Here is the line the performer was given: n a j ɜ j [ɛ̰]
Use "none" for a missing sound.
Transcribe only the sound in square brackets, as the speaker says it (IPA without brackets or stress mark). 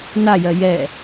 ɛ